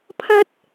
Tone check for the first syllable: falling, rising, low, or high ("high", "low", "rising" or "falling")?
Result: high